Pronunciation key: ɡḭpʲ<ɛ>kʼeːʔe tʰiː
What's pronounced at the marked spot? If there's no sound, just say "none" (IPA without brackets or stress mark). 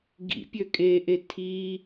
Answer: ø